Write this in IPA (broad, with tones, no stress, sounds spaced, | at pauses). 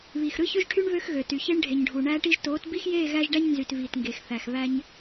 β iː˨ x ɾ ɯ˦ ç ø˦ ʒ ʈʰ y˦ ɳ β ø˦ x ɣ ø˨ t y˨ ç e˦ ɳ ɖʱ e˨ ɲ ɖʱ u˨ ɳ æː˦ ʈ i˦ ʒ t oː˨˦ t b i˦ x j eː˦˨ ɣ æ˦ ʒ ɖ æ˦ ɲ n z y˨ t v iː˨ t ŋ ɡ e˨ x θ æ˨ x β æ˦ ɲ